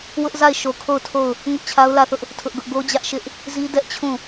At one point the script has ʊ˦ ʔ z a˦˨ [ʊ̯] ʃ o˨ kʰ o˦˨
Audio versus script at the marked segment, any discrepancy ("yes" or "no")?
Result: yes